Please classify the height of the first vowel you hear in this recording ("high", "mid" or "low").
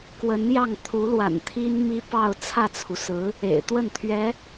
mid